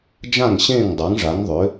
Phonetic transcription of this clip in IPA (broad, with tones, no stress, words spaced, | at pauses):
d͡ʒã˥˩ŋɕẽː˥˩ŋ dˤa˩˥ŋʐa˩˥ŋðˤʏ˩˥